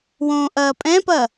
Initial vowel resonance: nasal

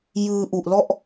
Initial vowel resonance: oral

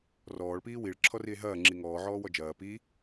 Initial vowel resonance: oral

